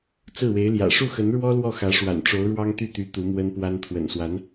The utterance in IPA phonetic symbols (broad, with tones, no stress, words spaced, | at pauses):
t͡sɹ̩˥˩we˧˥ɪ̯ljä̰˨˩ ʂu˥˩xə˧˥nɻwɔ˥ lwɔ˥˩xä˧˥ʂwa̰˨˩n ʈ͡ʂo˧˥ʊ̯ɻwɑ˥ŋt̪y˥˩t̪y˧˥ t̪u˧˥mwə˥npwa˥n t̪ʰwə̰˨˩nswa˧˥n